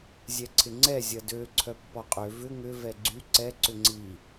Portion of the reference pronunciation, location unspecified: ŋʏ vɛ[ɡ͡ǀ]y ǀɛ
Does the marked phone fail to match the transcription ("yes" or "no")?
no